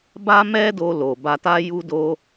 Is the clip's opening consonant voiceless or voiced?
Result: voiced